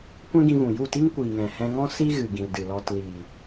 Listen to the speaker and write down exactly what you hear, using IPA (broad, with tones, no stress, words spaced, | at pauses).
kʷɛ̃˦ɡĩ˧vũ˨ ju˦˨ti˦ŋkʷiː˨ŋɛ̃˨ hɛ̃˧ŋɔ̃˦ si˦ɣɨ˨ ɡĩ˨ldɨ˨lɔ˧t liː˨